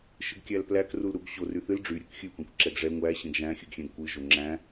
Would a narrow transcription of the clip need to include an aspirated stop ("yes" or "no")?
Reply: no